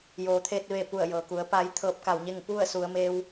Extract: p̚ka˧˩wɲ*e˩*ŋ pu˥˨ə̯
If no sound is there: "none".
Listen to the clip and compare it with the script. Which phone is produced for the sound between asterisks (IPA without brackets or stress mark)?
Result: e˥˨